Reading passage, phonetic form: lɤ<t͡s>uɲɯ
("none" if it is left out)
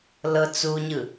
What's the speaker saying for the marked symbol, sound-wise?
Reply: t͡s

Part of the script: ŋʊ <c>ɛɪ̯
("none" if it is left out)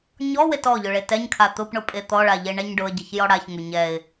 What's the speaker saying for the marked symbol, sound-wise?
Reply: ɲ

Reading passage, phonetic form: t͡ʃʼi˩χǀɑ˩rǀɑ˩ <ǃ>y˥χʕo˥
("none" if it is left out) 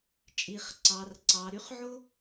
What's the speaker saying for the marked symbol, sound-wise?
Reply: ɾ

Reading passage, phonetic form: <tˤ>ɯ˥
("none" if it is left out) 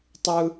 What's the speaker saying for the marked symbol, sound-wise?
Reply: tˤ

